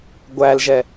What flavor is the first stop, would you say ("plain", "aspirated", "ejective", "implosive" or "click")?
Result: plain